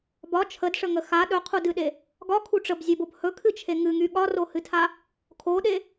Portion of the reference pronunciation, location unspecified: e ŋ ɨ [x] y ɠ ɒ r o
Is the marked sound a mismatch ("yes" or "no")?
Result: yes